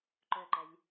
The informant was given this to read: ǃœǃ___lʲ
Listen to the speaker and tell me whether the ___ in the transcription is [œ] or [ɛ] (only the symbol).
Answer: ɛ